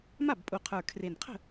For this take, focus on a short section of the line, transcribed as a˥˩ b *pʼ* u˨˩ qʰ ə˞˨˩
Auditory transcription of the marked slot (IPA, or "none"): pʼ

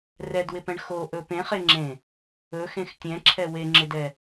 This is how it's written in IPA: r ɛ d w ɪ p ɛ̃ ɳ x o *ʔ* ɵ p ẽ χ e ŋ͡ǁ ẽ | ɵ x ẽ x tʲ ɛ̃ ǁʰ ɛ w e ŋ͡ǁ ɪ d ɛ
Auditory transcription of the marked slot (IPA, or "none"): ʔ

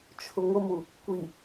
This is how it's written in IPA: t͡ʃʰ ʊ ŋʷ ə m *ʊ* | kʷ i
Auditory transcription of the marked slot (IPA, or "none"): u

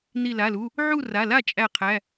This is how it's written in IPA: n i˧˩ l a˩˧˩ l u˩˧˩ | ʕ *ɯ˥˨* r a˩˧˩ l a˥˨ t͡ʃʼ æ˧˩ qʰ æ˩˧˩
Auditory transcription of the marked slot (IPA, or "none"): u˥˨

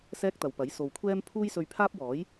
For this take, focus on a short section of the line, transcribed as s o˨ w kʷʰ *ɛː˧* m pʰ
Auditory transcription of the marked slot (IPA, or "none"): ɛː˥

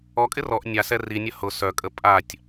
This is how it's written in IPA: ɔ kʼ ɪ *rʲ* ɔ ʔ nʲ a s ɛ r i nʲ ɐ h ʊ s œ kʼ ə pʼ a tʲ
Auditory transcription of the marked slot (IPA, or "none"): r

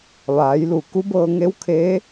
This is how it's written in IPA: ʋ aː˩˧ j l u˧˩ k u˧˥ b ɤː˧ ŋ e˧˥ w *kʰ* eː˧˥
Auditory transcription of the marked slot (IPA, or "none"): kʰ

